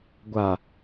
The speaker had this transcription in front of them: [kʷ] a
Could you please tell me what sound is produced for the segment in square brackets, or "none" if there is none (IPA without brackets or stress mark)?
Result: ɡʷ